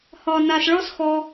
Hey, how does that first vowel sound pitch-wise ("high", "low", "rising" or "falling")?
low